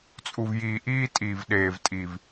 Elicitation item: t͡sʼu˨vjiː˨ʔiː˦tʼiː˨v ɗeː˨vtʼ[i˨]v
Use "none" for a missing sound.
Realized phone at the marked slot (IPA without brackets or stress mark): i˨